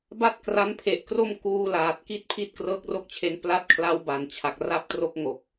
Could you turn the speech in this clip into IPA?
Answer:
b a˥˩ t̚ k r a˦˥ n pʰ e˨˩ ʔ k r o˥˩ m k uː˧ l aː˨˩ t̚ k i˥˩ t̚ pʰ i˦˥ t̚ k r ɤː˦˥ k̚ r o˥˩ k̚ t͡ɕʰ e˦˥ n p l a˦˥ t̚ kʰ l a˦˥ w b a˩˦ n t͡ɕʰ a˨˩ k̚ r a˦˥ p̚ t r o˦˥ k̚ ŋ o˨˩ k̚

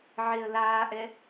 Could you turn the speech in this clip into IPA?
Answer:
ʕ e ə̯ l aː ʔ ɛ

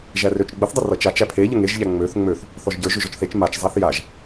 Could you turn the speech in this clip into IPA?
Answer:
ʒ æ r ø t͡ʃ ɡ͡b ə θ dˤ ə r ʌ t͡ʃ a t͡ʃ æ pʰ e ʎ ə ŋ e ʒ ʎ æ ŋ͡m ø θ ŋ͡m ø θ | θ ɔ ʒ ɟ ə˞ ʒ ø ʒ ɔ t͡ʃ θ e t͡ʃ m a t͡ʃ zˤ a θ j a ʒ

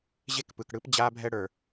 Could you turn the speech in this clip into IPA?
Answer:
ʑ e˦ k p ɯ˨ k ɽ ɯ˦ p d͡ʑ a˦ bʱ ɛ˦ ɽ ə˞˨

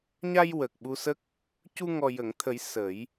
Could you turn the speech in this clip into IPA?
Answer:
ɲ a˧ j w əː˨˩ k̚ ɓ u˧ s ə˦˥ k̚ | c u˧ ŋ ɔ˨˩ j ə˨˩˨ ŋ t̪ʰ ə˨˩˦ j s ə˨˩˦ j

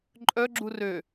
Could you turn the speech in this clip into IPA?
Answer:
ǃʼ œ ɡ͡ǁ u r ø

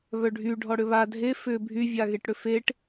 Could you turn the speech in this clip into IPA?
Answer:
β œ ɖʱ y ɖʱ ɔ ɽ ʏ β a dʱ e f ʏ bʱ y vʲ a ɣ e ʈ ɽ ʏ f e ʈ

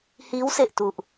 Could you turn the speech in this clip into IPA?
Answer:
h iː˦˥ w s e˨˩ ʔ t u˨˩ ʔ

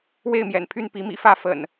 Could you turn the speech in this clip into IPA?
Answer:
w e˥˨ ɪ̯ m j ɛ̰˨˩ n pʰ y˥˨ n p i˨˦ m ḭ˨˩ f ä˥˨ f ə̰˨˩ n

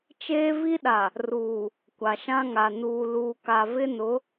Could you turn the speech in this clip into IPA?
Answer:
t͡ʃ eː˦ v i˦ ɗ a˨ | r uː˨ | kʷ a˨ ʃ ã˦ ŋ a˨ n uː˨ l uː˨ k a˨ v ɪ˦ n ʊ˨˦

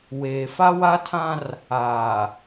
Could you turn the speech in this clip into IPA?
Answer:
w eː˨ f a˦ w a˦ tʰ ã˦ r | aː˨

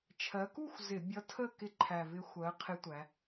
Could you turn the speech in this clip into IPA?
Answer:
t͡ʃʰ ɜ˩˧ k u˥˨ xʷ z ɪ˧˩˧ bʲ ʌ˧˥ tʰ ə˥˨ k ɪ˧ ǃʰ æ˨˩ v ɪ˧ xʷ ɜ˩˧ qʰ ɪ˧˥ tʷ æ˩˧

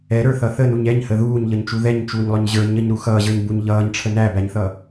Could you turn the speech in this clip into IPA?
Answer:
ɛ ɾ ə˞ θ ʌ θ ə n u ɲ ɛ ɲ h ə ð uː ɲ ʎ ʌ ɲ t͡ʃ u ð ɛ ɲ t͡ʃ uː ɲ lˠ ʊ ɲ ʑ ə˞ ɲ ə ɲ ɾ u x ʌː ʑ ə˞ ɲ b u ɲ ʎ ʌː ɲ ʈ͡ʂʰ ə n æ b æ ɲ θ ʌ

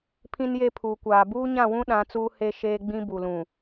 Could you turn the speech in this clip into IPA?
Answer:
pʰ ĩ˦ n j e˦ pʰ uː˨ kʷ aː˨ b uː˦ ɲ ã˦˨ w ũ˦ ɗ ã˨˦ t͡s uː˦ h e˦ ʃ eː˦ ɡ͡b ĩ˦ b u˨ l ũ˨

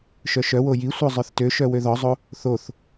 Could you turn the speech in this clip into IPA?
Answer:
ʃ œ ʃ œ w o j i sʷ œ zˤ œ θ t ø ʃ œ w ø ð ɔ zˤ o | θ o θ

